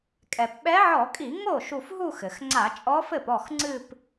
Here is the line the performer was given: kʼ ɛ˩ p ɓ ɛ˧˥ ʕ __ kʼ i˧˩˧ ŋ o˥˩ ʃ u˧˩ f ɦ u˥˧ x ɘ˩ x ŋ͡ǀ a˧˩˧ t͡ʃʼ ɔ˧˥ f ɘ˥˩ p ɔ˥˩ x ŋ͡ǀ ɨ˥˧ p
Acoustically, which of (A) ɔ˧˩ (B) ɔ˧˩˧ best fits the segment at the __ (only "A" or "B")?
B